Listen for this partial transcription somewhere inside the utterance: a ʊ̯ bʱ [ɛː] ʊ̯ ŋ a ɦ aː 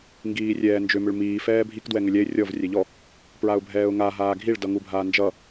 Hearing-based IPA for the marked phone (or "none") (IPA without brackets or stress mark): ɛː